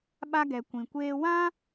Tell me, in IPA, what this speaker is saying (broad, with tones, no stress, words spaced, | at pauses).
ɓa˧ɡɛ˨ kʷĩ˨ kʷeː˧ wã˦